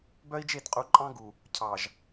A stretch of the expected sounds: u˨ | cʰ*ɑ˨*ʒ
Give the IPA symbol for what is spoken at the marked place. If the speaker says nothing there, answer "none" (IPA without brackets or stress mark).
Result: ɑ˨